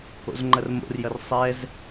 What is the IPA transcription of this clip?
o̰zŋ͡ǃɐrmo̰rjɐr sˤɛz

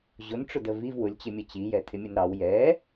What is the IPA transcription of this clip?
ʑʊnʈ͡ʂʊdə viv wʊlʲt͡ɕɪmʲə t͡ɕijɛtʰɪmʲən ɾɑw jɛ

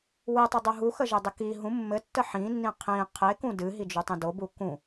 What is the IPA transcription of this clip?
wɨtˤɘdˤu ɦuxəʒedˤɘ ki ɦũ mːɘtːə ħĩnːĩ qʰĩ qʰekũ dɨɦid͡ʒutˤĩ dobu kũ

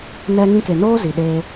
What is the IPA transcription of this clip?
nɛ˧ ŋĩ˧ke˨noː˦ zi˨ɗeː˧

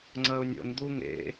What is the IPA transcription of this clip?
ŋ͡ǀɐʊ̯nʲo̰nd̪u ŋḛ

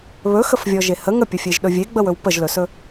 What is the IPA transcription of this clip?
βɵxəfvʲɔʒe hə ŋəpʲəfʲeʒɗɵ vʲeɡ͡bəwɵw pəʒlɵsɵ

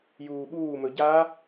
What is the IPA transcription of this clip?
juːɓuːmɵ ɟa

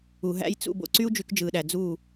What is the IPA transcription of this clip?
u˨ɦæ̰˦j t͡sṵ˧ bo̰˧ǀy˦u̯ d͡ʒy˧kd͡ʒɯː˨ɗæ˨ d͡zuː˦˨

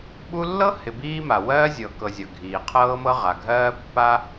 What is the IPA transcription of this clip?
ɓu˥ lːɤ˥hɪ˨ biː˥ma˩ wɜː˥ zʲɤ˨kɤ˨zʲʌ˩ ɡʱiː˩qʰɤː˥mɤ˥ ʁa˩ɡʱɜː˥pːa˥

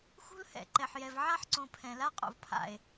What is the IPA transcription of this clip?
xṳ˦lhɛ̰˨ǃɛ˨ħjɛ˨v ʕa˦ħǀõ˨ pʰɛ̃˨la˦ qʼo̰˨vpʰa̰˨e̯

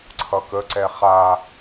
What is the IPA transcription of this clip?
ǀʰʌkəǀɛ χa

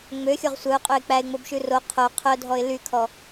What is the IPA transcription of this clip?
ŋ͡møxʲoʁ sʷœʊ̯qʼøɪ̯ k͡pæɪ̯ŋ͡mobʃʉ ro qʰo qʰœdʱɔɪ̯ lykʰɔ

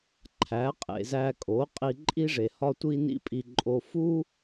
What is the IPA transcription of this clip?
ǃʰæ˨˦qʼḛ˨zæ˧kʼo˨˦ qʼi˧ǃʼi˦ʐe˨ hɒ˦tʷi˦ nḭ˦pʼi˧ǃʼo˧ fu˦

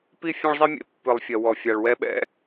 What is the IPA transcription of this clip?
pi˦ fʲẽ˦ɭzˤi˦mʲḛ˨˦ pːɨ˨lˠfʲɐ˨ wɔ˨fʲa˨ɭwɛ˦ɓɛ̰˦

